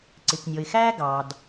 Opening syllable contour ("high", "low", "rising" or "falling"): low